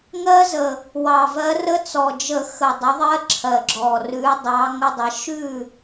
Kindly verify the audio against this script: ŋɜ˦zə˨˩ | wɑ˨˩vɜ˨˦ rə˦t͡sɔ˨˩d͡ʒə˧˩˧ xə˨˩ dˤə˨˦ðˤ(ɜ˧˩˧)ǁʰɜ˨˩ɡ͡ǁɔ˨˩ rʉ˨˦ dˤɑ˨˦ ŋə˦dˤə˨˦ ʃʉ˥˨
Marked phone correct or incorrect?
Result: incorrect